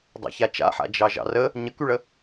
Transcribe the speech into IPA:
dˤ ɑ̰ ç a t͡ʃ a̰ ħ a̰ d͡ʒ ɑ ʒ ɑ̰ r ə | ɲ ə k y ɭ ə

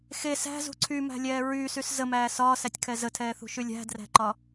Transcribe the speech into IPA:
x e s æ̤ z ṳ ǀʰ y m æ̤ lʲ ɛː ɹ yː s y s z ə m æː s ɒː s æ tʲ kʰ ɛ z ə tʰ ɛː θ ṳ ʃ y lʲ æ̤ d r æ̤ ǃ ɒ

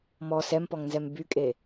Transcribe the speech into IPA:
m ɔ s ɛ m p ɔ ŋ n z ɛ m b y kʼ e

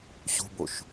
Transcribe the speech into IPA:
ɕ ṳ b o ʃ

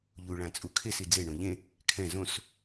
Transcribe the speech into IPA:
ʎ u ɭ ã t͡sʼ u kʰ e s i d͡z e ɳ õ ʎ ẽ | kʰ ɛ̃ z õ s

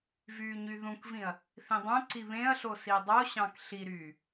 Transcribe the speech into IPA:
v yː ɲ y ð ũ k v ĩ ɐ̯ | θ ĩ dˤ õ ǀ i β ẽ ɐ̯ ɬ o s i dˤ o ɕ ɑ̃ k ɬ i ɾ yː

